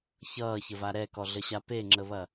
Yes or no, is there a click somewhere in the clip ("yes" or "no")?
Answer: yes